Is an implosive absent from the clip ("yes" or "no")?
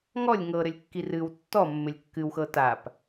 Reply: yes